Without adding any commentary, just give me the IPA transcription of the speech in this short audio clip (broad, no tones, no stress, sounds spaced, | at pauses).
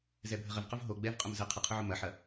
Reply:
z ɛ bʱ ə ʁ ə v q ʊ v ɦ o ɡ͡b ɛ v qʼ ʊ m z ə qʰ ə qʰ ʊ ʕ ʊ m ɐ ħ ɐ